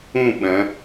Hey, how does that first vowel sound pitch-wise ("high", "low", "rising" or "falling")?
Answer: falling